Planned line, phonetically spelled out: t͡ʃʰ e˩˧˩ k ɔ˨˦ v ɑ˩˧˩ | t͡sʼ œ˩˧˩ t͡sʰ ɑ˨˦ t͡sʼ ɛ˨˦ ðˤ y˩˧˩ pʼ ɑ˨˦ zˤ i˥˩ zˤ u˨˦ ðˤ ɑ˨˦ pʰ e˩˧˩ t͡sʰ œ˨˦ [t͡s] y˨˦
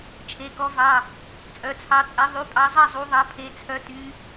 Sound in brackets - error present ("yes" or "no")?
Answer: yes